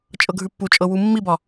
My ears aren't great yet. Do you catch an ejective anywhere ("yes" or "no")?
yes